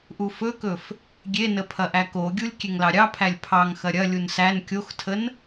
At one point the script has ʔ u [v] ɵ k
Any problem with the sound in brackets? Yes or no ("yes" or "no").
yes